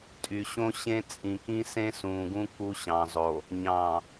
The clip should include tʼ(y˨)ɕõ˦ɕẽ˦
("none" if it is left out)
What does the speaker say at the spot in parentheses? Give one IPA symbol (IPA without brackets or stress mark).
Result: y˨